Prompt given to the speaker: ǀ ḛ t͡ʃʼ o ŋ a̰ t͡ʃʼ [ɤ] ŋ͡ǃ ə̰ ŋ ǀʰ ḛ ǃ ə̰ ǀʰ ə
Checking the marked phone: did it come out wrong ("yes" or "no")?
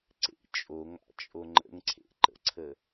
yes